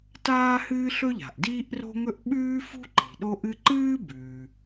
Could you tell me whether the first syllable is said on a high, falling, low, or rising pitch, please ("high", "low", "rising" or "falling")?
high